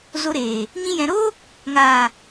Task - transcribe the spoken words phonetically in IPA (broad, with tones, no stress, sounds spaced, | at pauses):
z o˧ ɾ eː˨ | ɲ ĩ˧ j ɛ̃˨ ɾ oː˦ | ŋ aː˨